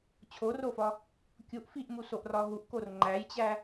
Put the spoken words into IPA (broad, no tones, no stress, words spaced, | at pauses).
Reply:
t͡ɕʰorofɒ | kʲuʔ fiʔmusoʔrɒ ɦuʔkor ŋ͡ǃæjt͡ɕæ